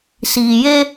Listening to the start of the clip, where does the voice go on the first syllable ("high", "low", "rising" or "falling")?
low